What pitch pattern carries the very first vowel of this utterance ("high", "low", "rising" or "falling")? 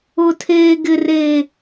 low